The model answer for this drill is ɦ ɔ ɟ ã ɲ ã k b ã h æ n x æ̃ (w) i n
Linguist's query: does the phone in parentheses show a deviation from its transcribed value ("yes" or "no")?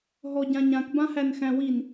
no